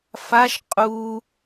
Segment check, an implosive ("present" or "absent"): absent